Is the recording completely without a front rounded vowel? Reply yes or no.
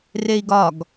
yes